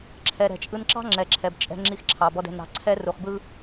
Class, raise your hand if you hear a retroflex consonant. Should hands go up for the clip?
no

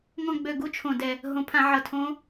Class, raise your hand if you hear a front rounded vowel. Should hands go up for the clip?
yes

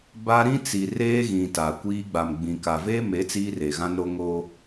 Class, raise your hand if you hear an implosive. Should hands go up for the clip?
no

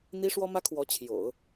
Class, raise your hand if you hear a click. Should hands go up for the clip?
no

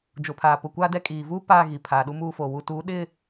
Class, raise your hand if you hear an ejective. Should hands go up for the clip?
yes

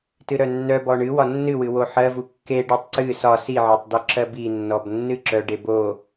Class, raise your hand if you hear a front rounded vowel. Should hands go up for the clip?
yes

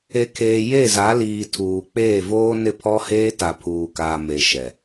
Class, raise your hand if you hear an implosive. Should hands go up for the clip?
no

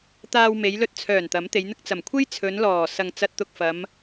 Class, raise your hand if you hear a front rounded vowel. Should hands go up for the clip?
yes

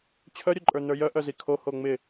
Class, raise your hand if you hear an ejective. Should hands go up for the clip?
yes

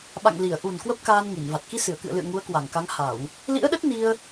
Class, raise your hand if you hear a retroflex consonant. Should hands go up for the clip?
no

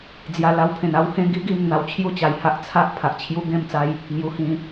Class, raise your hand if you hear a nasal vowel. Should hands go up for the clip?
yes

